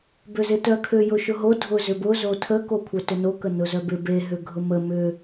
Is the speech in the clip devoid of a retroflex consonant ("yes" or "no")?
yes